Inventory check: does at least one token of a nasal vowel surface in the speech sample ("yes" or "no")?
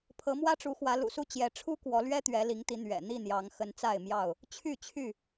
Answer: no